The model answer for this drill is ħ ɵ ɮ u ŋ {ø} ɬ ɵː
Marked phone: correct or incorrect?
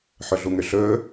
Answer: correct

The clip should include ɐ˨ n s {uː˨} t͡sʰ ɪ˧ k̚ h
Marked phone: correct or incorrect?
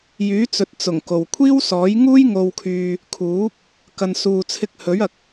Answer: correct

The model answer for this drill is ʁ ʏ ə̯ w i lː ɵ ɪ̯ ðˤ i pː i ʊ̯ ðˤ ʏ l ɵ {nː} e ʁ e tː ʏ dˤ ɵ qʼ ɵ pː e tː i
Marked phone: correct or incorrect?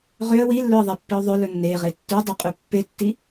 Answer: correct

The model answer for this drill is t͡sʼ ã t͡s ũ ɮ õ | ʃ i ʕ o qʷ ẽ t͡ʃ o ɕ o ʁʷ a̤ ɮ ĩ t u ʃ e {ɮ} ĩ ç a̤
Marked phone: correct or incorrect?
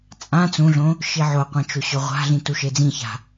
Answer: incorrect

